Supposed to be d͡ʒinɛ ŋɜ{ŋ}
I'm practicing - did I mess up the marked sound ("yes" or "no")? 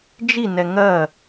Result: yes